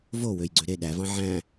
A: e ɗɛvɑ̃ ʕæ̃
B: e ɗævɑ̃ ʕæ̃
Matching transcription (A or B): B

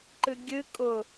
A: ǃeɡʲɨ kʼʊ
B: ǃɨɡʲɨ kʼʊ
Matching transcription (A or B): B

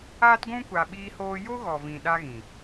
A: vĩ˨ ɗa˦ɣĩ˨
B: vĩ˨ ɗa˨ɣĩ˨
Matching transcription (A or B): A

